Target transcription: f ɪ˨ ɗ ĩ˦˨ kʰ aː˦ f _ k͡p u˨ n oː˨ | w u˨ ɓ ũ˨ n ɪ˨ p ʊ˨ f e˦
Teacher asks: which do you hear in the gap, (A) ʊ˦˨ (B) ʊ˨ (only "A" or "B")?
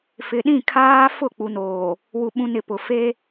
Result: A